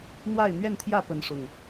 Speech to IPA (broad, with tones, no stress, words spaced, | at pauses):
n̪wa˥˨ɪ̯ n̪ɥɛ˥˨nt̪ʰjä˥˨ pə˨˦nʂʊ˨˩ŋ